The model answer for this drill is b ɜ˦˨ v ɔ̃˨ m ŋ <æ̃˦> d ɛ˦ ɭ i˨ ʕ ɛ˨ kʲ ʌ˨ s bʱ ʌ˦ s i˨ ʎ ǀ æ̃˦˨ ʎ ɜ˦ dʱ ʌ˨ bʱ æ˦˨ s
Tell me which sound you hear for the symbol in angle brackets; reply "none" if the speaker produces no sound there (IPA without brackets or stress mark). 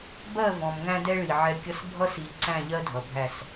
æ̃˦